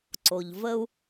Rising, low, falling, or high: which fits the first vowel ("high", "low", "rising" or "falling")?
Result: low